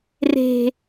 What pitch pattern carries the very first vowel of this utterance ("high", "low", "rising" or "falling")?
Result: low